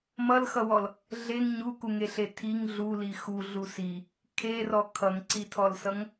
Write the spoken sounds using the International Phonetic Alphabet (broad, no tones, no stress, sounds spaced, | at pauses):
m ʌ l x ʌ w ɔ l | ɮ e ŋ ɲ u k u ŋ e ɬ e tʰ i ŋ ɮ u l i x u ɮ u s i | kʰ e r ɔ kʰ ʌ ŋ ǀ i tʰ ɔ l s ʌ ŋ